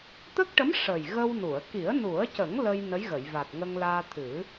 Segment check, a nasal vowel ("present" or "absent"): absent